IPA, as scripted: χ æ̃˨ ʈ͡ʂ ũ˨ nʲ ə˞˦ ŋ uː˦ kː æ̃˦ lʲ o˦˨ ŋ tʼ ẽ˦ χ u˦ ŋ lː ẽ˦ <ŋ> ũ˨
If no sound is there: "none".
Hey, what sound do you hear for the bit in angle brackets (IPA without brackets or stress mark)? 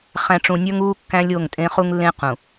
q